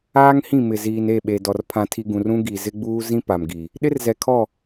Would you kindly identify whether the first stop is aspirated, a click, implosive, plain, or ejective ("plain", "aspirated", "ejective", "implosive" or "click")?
implosive